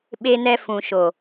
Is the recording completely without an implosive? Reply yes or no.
no